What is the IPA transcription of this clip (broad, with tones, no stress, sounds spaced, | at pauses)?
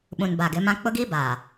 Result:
ɓ ũ˨ n b a˨ ɡ ɪ˨˦ m ã˦ k͡p ʊ˦ ɡ i˦ b aː˨